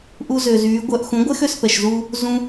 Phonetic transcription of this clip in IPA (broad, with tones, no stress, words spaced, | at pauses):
ʔu˧zø˨zyː˨˦ ɡʷœ˧ʔ xũ˨˦ɡʷɛ˦x ø˧spɛ˨ʃzuː˧ | zũ˧